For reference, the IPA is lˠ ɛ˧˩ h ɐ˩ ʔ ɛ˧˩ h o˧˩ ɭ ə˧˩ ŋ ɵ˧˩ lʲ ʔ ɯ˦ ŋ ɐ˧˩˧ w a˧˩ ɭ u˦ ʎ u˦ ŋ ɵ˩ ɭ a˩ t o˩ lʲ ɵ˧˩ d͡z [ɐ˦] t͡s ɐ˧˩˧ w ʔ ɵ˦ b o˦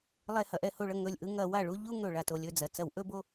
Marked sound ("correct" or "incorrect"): incorrect